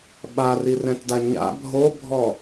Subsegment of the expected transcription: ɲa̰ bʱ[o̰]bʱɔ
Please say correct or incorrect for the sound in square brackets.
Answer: incorrect: o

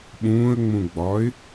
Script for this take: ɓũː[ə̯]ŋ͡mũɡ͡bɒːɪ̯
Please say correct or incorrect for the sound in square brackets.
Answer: correct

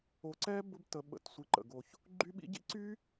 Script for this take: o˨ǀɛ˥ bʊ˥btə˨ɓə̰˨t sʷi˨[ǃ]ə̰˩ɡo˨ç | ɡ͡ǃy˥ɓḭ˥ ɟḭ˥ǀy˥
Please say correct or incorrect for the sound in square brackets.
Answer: correct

